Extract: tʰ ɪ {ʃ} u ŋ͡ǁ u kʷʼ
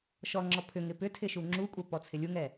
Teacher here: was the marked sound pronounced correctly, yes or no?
yes